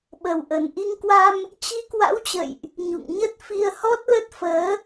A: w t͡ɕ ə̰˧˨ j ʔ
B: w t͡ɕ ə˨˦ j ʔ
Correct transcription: A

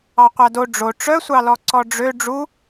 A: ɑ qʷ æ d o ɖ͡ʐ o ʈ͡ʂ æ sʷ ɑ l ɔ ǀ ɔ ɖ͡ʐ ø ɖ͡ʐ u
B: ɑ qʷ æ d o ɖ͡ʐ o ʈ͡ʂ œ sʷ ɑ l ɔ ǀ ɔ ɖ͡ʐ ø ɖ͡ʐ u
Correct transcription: B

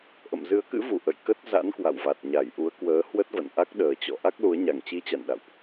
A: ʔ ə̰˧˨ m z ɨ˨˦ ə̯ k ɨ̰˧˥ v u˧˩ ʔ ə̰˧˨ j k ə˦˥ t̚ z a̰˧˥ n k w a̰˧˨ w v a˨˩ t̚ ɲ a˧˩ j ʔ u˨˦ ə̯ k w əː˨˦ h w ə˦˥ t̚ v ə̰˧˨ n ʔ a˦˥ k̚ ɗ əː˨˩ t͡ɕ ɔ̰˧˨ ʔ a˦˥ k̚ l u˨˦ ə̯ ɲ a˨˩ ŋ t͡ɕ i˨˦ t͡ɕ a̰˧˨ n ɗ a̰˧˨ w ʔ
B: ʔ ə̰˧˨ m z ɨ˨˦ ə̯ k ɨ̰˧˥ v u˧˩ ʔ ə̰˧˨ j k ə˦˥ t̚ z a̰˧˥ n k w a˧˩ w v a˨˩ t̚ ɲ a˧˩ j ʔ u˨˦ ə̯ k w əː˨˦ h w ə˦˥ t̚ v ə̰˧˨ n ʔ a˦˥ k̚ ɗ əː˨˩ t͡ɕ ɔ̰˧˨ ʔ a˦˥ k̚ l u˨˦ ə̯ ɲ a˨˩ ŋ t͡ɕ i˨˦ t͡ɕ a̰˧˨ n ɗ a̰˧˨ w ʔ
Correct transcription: A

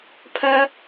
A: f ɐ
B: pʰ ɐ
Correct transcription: B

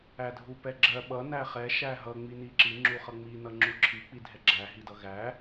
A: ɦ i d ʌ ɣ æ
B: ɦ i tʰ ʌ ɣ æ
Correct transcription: A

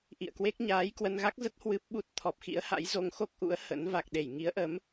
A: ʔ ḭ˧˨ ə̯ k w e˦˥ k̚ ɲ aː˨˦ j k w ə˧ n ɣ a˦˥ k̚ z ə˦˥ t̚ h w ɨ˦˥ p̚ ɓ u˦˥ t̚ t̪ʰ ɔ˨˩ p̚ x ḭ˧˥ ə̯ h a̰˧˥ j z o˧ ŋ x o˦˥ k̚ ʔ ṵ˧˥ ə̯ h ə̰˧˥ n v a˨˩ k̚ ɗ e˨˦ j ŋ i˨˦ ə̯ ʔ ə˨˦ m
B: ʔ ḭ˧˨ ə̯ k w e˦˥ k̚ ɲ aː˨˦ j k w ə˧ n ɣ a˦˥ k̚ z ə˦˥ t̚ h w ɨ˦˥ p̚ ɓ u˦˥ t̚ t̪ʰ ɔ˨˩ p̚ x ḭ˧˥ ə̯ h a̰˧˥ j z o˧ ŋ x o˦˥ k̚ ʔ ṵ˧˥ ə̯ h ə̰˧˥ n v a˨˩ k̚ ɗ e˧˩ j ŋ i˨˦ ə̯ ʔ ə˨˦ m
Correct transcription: B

